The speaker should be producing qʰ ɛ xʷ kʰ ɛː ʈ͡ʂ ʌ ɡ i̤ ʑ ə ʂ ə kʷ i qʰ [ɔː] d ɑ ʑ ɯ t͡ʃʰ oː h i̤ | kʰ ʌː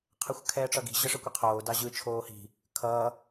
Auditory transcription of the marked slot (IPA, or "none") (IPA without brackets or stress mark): oː